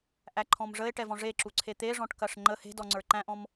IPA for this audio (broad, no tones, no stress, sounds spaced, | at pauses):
ʔ æ ǃʰ ɔ̃ m ʐ ə e̯ ʈ ɛ v ɔ̃ ʐ e ǁ u ǀʰ e t̪ e ʐ ɔ̃ ʈ k ɐ ʂ ŋ͡ǃ ə h e̤ d ɔ ŋ͡ǀ ə˞ ǃ æ̃ ʔ ɔ̃ m